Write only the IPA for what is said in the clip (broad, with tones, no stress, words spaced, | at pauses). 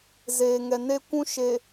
zeː˨ŋɛ˨ne˦ kʷũ˦ʃe˨